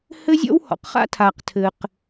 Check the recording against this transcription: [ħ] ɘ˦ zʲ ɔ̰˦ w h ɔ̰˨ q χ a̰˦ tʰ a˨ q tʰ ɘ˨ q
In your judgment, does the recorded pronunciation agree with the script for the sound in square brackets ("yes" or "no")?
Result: no